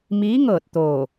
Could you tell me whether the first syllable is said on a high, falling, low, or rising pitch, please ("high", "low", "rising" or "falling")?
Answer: rising